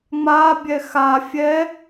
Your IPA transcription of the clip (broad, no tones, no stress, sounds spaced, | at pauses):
ŋ͡m a bʲ ɛ x a fʲ ɛ